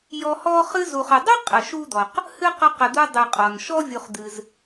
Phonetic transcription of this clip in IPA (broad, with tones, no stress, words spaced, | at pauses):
jɔ˦hɔ˥ χɨ˦zu˨χ ə˨dˤə˥ qʼə˨ʃu˥d̪ɔ˨q | hɨ˥qə˦qə˨d̪u˦ dˤɨ˨qʼɔ˩nʃɔ˥ vʲu˨χd̪ɨ˨z